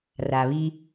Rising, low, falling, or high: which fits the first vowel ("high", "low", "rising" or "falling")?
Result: low